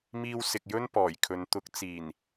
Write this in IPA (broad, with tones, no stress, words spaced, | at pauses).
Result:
miː˧wsɪ˨k̚jɵ˥n pɔː˨˩jkʰɵ˨˧n t̪ʊ˨˥k̚t͡siː˨˩n